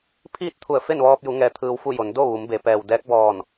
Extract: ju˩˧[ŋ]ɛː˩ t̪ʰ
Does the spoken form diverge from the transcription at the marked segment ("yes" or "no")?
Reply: no